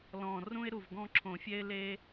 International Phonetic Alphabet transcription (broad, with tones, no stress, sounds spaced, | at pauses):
l ɔ̃˨˩ r ũ˦ ɪ̯ ɾ u˨˩ v ɡ ɔ̃˦ ǁʰ õ˨˩˦ fʲ ɛ˦ ɪ̯ l e˦